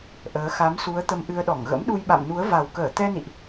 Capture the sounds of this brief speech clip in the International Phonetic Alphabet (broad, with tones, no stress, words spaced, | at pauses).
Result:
ʔəː˨˦ xa˨˦msu˨˦ə̯ t̪ə˧mʔɨ˧ə̯ɗɔ˧˩ŋ ɣə̰˧˥mɗu˧jɓa̰˧˨m nu˨˦ə̯ va˨˩wkəː˧˩ t̪ɛ˧nḭ˧˨ʔ